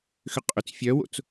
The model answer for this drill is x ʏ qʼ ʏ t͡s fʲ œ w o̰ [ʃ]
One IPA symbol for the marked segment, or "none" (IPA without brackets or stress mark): t͡s